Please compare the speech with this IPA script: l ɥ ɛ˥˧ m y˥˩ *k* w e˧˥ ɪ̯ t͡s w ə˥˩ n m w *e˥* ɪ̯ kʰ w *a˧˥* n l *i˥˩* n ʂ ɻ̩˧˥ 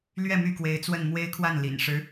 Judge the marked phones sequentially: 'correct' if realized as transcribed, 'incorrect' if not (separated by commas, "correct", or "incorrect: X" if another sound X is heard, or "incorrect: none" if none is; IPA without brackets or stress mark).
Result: correct, correct, incorrect: a˥˩, incorrect: ḭ˨˩